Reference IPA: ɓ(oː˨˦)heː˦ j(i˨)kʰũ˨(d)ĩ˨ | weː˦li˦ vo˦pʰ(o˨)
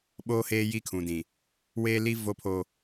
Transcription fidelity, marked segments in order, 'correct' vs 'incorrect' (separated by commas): incorrect, incorrect, correct, incorrect